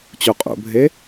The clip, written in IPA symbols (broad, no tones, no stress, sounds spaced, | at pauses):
t͡ɕ u qʼ ṵ bʱ e